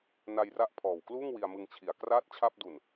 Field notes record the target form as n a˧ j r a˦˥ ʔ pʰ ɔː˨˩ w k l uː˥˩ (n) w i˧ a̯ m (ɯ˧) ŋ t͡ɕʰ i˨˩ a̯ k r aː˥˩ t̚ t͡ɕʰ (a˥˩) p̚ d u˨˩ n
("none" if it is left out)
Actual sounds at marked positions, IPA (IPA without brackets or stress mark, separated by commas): ŋ, ɯ˧, a˥˩